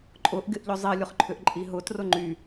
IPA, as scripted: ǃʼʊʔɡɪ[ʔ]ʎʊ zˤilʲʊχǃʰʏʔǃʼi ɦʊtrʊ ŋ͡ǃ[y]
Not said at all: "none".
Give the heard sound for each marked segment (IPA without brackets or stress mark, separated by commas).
ʔ, y